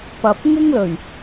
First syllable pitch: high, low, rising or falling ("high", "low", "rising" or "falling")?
low